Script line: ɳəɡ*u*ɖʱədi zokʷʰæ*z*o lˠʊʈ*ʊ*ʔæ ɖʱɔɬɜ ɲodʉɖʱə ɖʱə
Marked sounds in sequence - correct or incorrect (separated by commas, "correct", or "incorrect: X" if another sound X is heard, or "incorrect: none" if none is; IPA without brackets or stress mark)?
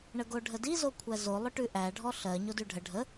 incorrect: o, correct, incorrect: ʉ